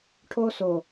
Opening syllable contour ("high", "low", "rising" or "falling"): high